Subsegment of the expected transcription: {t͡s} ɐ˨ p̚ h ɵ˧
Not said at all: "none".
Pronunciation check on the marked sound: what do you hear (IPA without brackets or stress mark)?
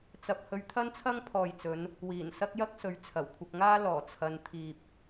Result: t͡s